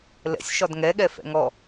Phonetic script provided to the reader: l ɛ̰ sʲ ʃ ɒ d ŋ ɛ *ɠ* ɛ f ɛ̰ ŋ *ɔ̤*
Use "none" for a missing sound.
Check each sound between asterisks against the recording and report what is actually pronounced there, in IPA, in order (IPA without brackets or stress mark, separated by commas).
ɠ, ɔ